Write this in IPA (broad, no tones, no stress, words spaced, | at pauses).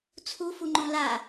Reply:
t͡sʰufuŋ͡ǃõ la